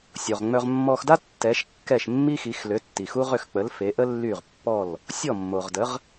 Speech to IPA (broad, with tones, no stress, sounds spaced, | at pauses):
sʲ o˩ ʁ ŋ͡m œ˧ ʁ mː ɔ˧ x d a˥ tː ɛ˩˥ ʃ kː ɛ˥˩ ʃ mː i˥ x i˩˥ x l ø˩˥ tː i˩ x u˥ ʁ ø˥˩ x k͡p ə˩˥ l f e˩˥ ʔ ə˥ lː y˥˩ ʁ pː ɔ˥˩ l | sʲ ɔ˥˩ mː o˩ ʁ d ə˩˥ ʁ